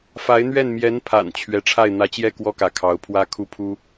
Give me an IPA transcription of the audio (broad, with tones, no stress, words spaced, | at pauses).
fa˧˥ɪ̯ n̪ɥɛ˥˩n mjɛ˧˥npʰa̰˨˩n t͡ɕʰɥɛ˧˥ʈ͡ʂʰa˥˩ɪ̯ n̪ä˧˥t͡ɕjɛ˥˩ kwɔ˥kä˧˥ kʰɑ˧˥ʊ̯pʰwä˥ kʰu˥˩pʰu˥